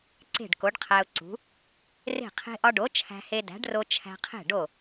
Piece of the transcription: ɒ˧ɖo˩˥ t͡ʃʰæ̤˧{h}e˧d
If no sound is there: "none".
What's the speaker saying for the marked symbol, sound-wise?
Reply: h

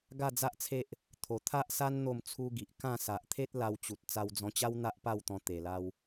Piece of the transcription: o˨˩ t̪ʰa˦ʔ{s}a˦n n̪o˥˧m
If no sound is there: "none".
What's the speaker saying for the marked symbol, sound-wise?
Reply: s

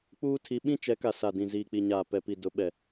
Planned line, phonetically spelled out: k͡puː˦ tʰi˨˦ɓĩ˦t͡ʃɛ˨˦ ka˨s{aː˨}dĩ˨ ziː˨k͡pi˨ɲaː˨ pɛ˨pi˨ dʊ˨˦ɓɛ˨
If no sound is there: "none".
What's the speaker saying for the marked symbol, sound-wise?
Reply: a˨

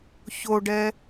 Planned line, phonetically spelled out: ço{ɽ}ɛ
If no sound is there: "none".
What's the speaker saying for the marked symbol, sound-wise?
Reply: ɖ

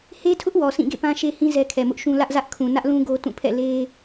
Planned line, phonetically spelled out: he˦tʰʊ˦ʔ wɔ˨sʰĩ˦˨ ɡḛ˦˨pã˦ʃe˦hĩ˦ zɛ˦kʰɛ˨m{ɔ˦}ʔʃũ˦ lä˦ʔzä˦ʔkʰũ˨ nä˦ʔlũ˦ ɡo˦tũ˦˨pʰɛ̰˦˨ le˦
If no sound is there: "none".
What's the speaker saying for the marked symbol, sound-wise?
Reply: ʊ˦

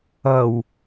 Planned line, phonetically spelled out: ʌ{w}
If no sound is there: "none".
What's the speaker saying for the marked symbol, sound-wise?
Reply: w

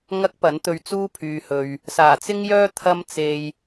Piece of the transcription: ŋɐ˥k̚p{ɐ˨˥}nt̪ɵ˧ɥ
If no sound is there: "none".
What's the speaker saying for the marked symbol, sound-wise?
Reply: ɐ˨˥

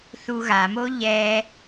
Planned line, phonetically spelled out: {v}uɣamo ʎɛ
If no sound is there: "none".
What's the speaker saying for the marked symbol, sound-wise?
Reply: θ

